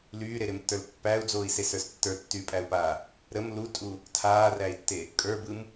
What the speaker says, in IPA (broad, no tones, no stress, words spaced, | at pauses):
lyːɾeɾemtːə˞l pːæːu̯d͡zoːi̯sesə˞s tːə˞tːyːpʼæu̯paː | ɾəm lutʼu | tʰaːræi̯tːe | kʼə˞bɯm